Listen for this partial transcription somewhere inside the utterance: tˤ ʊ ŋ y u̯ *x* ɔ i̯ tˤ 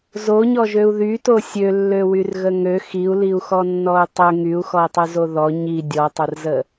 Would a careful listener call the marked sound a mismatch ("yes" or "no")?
no